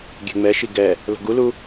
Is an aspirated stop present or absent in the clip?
absent